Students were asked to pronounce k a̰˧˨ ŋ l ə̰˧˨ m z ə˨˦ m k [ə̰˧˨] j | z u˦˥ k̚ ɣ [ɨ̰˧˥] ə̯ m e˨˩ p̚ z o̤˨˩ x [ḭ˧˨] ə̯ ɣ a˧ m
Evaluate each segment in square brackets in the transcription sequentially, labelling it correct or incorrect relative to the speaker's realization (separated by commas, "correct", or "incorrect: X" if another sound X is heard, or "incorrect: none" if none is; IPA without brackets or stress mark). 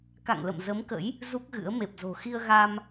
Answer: incorrect: ə̰˧˥, correct, incorrect: i˧